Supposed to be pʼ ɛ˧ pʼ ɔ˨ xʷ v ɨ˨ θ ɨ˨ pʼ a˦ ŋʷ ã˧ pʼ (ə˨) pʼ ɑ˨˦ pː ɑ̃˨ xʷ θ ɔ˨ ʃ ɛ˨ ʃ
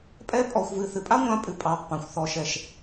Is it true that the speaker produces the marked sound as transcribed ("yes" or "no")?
no